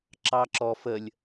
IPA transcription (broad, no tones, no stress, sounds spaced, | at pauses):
ǁ ɑ ǁ ɔ f ə lʲ